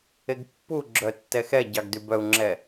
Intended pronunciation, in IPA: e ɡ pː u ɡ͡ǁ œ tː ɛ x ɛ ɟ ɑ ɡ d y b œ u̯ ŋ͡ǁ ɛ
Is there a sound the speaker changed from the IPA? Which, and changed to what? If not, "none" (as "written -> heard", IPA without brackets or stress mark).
none